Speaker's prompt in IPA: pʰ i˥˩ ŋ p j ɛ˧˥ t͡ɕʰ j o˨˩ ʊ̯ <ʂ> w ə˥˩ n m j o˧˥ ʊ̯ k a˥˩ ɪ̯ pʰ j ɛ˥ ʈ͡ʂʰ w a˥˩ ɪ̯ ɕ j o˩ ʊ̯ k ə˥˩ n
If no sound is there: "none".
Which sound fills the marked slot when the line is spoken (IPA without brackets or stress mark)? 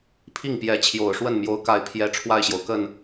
ʂ